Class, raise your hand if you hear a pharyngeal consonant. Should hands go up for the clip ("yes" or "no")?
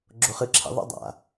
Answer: no